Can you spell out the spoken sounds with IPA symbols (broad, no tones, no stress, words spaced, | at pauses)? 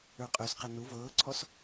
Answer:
ə˞qʼøsqɛ nu vɤːǀʰɔs